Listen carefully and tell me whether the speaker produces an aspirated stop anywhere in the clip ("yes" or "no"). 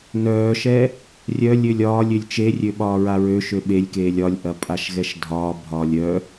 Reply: no